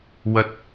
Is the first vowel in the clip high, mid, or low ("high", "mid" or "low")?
low